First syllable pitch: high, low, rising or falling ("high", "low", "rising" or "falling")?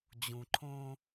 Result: low